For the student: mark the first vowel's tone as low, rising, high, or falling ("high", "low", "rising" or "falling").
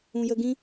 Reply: low